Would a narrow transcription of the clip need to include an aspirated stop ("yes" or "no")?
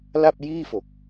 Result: no